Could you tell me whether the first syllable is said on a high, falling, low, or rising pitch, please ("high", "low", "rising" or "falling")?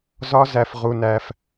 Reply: high